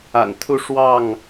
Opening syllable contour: low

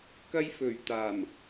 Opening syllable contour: high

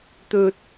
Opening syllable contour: high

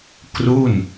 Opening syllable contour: falling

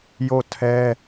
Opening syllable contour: falling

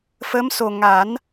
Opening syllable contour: rising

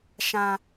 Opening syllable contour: high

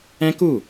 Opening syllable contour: high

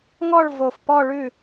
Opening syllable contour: falling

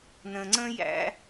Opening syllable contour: low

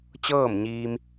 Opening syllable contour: falling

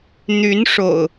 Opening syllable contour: rising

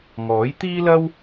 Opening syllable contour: rising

